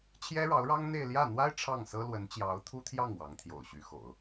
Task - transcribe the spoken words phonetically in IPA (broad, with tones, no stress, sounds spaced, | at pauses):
t͡ɕʰ j ɛ˥ ɻ ɑ˧˥ ʊ̯ ɻ ɑ˥ ŋ n̪ e˥˧ ɪ̯ l j ä˥˩ n̪ w a˥ ɪ̯ ʈ͡ʂʰ ɑ˥˩ ŋ s ɤ˥ l w ə˧˥ n t͡ɕ j ɑ˧˥ ʊ̯ t̪ʰ u˥ t̪ʰ j ɑ˥˩ ŋ w ɑ˧˥ ŋ t̪ʰ j o̰˨˩ ʊ̯ ɕ y˧˥ x o̰˨˩˦ ʊ̯